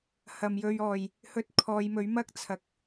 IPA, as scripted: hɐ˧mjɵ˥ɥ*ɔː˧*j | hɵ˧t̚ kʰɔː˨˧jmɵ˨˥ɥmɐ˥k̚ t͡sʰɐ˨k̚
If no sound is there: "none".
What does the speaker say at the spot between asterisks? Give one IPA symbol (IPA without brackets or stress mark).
ɔː˧